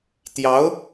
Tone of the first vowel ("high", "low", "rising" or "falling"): rising